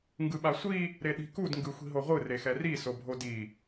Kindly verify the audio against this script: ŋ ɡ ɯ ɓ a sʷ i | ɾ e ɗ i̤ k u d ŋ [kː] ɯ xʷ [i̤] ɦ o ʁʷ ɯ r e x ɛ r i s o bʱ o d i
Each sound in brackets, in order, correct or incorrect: incorrect, correct

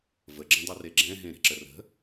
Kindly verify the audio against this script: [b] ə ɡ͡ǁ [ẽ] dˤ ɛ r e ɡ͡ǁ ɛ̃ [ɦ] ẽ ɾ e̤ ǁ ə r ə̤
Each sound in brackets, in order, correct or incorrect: incorrect, correct, correct

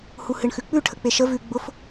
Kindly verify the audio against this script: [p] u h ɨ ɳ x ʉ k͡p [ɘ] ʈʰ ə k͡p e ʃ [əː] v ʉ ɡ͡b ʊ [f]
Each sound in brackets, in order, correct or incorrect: incorrect, incorrect, incorrect, correct

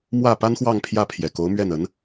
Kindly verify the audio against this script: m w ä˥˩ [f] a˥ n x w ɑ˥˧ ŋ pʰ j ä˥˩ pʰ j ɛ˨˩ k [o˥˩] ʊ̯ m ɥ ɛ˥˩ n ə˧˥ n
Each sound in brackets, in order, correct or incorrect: incorrect, incorrect

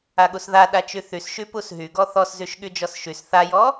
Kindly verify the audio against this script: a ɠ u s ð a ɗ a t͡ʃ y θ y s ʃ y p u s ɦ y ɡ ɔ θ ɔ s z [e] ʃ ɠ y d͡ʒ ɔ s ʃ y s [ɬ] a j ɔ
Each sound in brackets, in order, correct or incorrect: incorrect, incorrect

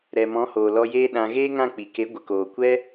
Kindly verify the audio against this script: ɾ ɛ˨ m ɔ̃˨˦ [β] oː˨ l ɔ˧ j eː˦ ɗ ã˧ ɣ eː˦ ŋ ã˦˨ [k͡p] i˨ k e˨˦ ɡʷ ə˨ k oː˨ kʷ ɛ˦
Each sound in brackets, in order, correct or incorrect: incorrect, correct

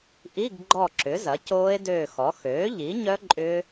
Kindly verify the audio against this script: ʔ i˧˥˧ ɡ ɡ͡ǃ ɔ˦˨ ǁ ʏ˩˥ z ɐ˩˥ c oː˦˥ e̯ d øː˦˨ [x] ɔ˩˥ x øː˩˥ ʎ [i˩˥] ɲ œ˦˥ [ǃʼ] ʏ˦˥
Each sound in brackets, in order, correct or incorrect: correct, correct, correct

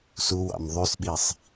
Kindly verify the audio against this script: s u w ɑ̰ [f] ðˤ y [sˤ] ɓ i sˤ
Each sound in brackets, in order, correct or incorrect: incorrect, incorrect

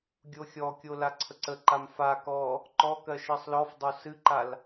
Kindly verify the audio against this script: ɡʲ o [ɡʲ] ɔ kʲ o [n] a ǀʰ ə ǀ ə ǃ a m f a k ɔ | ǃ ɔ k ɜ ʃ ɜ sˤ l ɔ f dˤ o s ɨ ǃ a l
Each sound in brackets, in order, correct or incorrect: incorrect, incorrect

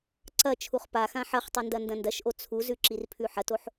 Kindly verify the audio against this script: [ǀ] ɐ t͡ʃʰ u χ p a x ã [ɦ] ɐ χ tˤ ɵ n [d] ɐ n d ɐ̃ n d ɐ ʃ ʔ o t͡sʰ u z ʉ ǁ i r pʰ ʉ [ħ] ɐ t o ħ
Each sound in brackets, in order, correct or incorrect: correct, incorrect, correct, correct

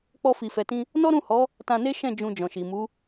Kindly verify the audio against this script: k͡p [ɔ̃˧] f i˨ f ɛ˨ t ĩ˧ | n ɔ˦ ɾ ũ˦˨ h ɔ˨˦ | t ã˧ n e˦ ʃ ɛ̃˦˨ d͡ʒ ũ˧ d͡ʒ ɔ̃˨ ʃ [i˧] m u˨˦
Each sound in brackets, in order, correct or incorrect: incorrect, incorrect

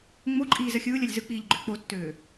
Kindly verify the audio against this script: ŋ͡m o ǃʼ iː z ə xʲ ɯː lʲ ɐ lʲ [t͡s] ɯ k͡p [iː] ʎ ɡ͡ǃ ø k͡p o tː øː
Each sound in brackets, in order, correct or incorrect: incorrect, correct

